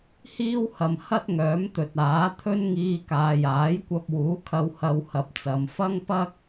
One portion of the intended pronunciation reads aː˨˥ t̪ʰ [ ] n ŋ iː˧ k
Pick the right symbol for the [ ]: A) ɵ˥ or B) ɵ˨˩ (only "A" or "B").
A